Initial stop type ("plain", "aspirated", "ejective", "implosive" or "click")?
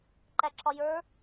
click